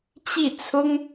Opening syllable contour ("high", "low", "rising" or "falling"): falling